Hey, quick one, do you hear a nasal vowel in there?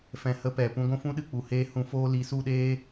yes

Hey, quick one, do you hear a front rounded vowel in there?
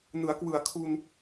no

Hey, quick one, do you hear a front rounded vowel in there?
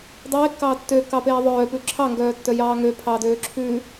yes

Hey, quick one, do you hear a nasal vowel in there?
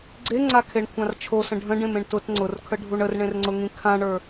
yes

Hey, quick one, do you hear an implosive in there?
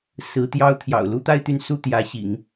no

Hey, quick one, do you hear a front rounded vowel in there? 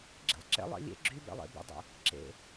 yes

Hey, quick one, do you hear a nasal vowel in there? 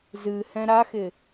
yes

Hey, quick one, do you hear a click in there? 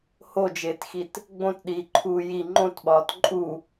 yes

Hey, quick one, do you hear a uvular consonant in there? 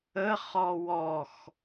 yes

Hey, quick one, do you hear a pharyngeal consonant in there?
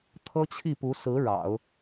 no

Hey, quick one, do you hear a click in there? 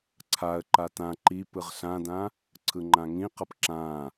yes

